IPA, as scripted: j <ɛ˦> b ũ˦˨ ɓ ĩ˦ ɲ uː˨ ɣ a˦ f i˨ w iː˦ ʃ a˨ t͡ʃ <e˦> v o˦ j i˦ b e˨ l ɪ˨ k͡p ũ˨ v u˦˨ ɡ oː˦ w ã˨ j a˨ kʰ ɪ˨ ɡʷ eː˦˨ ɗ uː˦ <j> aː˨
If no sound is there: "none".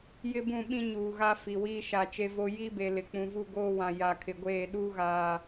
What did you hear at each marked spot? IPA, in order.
ɪ˦, e˦, ɣ

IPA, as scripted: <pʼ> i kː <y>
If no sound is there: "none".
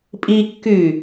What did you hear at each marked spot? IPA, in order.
pʼ, y

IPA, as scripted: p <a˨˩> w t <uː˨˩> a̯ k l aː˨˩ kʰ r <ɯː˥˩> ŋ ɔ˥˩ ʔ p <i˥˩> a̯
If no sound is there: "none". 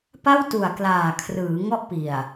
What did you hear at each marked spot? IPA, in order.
a˥˩, u˨˩, ɯː˩˦, i˨˩

